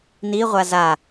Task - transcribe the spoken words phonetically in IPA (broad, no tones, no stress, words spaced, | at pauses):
niʁʷa za